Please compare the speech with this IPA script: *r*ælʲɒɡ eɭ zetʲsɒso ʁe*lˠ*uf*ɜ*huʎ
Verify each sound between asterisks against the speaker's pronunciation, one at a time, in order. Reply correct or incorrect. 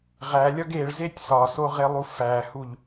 incorrect: ʁ, correct, incorrect: æ

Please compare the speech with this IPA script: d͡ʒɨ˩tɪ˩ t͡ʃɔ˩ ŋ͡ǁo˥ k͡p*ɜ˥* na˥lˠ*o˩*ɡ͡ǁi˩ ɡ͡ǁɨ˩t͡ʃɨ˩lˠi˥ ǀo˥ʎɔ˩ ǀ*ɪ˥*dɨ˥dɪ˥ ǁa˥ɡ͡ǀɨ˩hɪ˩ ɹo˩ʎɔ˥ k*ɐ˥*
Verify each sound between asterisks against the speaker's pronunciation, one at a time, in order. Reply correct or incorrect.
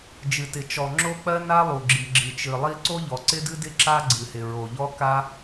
correct, incorrect: u˩, correct, incorrect: a˥

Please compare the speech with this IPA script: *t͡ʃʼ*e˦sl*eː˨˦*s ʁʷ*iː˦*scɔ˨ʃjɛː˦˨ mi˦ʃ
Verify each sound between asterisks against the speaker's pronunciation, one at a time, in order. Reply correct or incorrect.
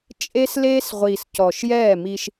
correct, incorrect: eː˦, incorrect: iː˨

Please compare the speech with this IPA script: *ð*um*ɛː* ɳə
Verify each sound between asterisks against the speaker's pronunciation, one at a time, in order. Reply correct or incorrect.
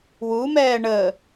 incorrect: w, correct

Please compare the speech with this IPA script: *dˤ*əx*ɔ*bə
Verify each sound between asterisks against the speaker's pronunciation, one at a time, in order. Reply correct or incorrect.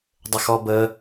correct, correct

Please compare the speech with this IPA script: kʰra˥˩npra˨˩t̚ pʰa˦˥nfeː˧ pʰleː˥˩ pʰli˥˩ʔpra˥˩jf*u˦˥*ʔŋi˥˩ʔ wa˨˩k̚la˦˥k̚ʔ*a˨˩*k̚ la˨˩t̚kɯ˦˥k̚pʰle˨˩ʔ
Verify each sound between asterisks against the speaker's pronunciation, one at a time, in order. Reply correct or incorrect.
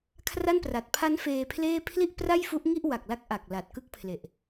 correct, correct

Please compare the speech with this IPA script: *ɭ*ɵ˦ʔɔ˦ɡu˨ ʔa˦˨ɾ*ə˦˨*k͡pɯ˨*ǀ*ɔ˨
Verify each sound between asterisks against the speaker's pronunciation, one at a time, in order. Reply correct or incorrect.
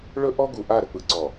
correct, incorrect: ə˨, correct

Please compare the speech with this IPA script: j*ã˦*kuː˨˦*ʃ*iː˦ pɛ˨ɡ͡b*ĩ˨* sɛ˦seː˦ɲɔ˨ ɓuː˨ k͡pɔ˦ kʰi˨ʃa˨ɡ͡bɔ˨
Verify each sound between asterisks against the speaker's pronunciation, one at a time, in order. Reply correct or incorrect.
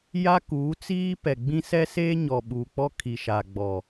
incorrect: a˦, incorrect: t͡s, incorrect: ĩ˦

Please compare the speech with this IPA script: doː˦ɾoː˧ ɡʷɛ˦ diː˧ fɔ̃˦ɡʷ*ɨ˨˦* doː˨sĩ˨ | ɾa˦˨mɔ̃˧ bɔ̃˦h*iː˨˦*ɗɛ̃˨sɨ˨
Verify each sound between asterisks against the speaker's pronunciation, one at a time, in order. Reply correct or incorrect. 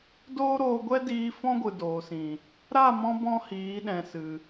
incorrect: ɨ˨, correct

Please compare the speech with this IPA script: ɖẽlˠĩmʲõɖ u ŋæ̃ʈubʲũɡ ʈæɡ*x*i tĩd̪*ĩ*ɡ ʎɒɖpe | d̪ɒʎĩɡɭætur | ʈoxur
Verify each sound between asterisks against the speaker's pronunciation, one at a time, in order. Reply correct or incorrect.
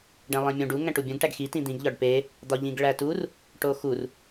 correct, correct

